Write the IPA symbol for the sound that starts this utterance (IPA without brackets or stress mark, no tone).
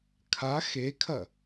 kʰ